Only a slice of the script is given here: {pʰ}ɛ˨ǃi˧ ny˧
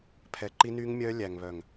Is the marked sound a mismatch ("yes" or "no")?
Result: no